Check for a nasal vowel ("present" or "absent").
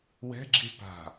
absent